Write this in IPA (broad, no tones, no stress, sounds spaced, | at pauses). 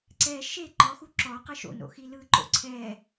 ǀ ɛ ʃ e ǃ ɔ x u ǁ ɔ q ɯ ʃ o̰ n o̰ x i l ɯ ǃ o̰ ǀʰ ɛ